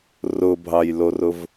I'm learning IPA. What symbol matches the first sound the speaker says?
r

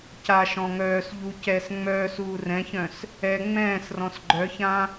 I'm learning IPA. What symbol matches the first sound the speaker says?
c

